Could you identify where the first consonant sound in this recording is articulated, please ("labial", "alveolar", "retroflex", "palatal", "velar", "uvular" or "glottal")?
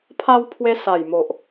labial